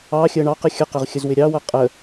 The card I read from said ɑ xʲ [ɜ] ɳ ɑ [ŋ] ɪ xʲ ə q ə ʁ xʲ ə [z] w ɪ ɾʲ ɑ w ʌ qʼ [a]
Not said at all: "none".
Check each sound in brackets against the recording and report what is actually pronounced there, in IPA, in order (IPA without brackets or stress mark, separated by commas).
ɜ, q, z, ə